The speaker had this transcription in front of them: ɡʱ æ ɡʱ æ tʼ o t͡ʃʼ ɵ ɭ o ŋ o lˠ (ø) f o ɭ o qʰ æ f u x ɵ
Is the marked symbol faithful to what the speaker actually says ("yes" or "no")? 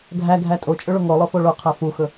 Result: no